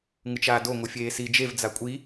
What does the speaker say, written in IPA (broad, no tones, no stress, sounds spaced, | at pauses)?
ŋ ɯ t͡ʃ aː d o ŋʷ ɯ fʲ eː s i d͡ʒ e v d͡z a kʷʼ i